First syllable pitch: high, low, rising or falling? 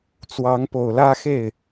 rising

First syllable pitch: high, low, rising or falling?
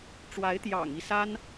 rising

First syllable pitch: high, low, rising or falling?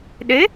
rising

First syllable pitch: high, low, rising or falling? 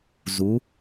rising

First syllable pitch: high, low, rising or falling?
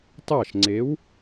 falling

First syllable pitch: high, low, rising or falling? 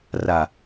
low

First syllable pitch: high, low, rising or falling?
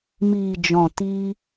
low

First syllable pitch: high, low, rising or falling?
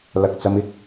low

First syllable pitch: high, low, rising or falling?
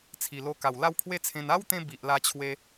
low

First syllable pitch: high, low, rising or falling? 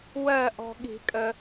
falling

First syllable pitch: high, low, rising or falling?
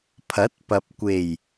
rising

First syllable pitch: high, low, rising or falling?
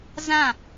falling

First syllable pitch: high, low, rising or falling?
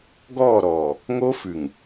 falling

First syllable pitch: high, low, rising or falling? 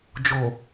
low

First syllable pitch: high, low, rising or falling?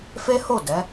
high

